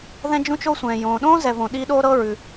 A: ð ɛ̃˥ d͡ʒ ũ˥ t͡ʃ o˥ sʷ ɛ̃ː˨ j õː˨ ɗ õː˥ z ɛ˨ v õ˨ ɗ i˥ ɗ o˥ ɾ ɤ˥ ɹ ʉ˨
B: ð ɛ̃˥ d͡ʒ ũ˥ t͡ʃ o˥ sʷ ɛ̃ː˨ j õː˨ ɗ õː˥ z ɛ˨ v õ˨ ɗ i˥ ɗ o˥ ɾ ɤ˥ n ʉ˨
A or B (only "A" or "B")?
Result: A